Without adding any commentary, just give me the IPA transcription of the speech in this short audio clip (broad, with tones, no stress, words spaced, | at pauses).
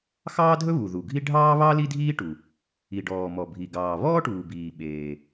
xɑː˥dʱɵ˥βu˩ ðu˩ɡʱi˥ ɖʱɑː˥ βɑ˥ li˥dʱiː˥ʈu˩ | i˩ɖɔː˩mɔ˩bʱi˩ ɡɑː˩βɔː˥ʈuː˩biː˩ ɓeː˩